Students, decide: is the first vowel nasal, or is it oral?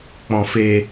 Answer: nasal